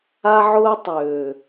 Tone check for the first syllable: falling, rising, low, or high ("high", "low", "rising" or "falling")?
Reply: high